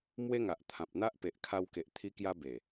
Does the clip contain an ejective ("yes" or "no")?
no